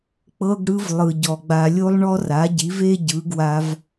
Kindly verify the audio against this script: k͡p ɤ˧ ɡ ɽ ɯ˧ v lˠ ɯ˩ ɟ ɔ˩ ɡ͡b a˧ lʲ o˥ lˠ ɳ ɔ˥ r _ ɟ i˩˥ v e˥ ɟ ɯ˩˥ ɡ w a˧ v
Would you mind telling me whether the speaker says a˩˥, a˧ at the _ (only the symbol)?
a˩˥